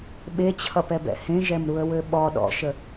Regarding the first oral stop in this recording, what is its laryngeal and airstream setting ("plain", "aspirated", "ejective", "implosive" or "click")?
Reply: implosive